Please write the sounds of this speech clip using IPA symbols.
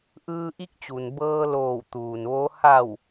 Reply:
ʔɯː˧ʔi˧˥k̚t͡ɕu˩nbɤː˧ loː˧˩wt̪uː˩nʋo˧˥ ha˧˩w

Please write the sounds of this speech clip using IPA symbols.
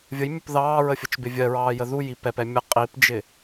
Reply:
vʲəjmʲʊp ðɑːɹəfʲət͡ʃbɪ vʲɜɹɑːjə ðujip ɛpɛ mʲə qʼipd͡ʒɪ

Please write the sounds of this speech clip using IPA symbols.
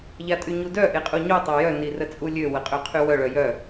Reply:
ʎatʼyɲudœ ʔeqʼuɲu tˤœjœ nirət͡sʼulʲø wəqʼøqʰywœ ɭœjœ

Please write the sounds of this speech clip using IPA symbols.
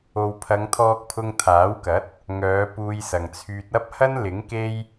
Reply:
o˨wpʰɐ˨˧ŋ t̪ʰɔː˧k̚pʰʊ˧ŋt̪ʰaː˨˥wkɐ˨˥t̚ | ŋœː˨˧ puː˧jsɐ˨ŋt͡sʰyː˧t̚ ɐ˥p̚hɐ˥nlɪ˨˥ŋ ke˥j

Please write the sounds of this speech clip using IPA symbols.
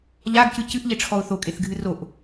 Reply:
ʎaɡcɨ cɨʔʎeʈ͡ʂʰɔʊ̯ θokʼeθɡʱɨ roʔ

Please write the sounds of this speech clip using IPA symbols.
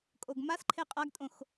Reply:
kʼoɡmasǃʰe qʼaɡtʼõx

